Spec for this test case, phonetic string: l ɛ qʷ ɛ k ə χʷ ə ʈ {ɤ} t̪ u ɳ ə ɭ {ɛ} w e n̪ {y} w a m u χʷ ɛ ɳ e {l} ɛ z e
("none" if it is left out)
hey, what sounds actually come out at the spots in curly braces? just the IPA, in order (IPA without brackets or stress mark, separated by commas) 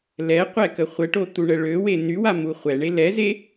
o, ø, y, l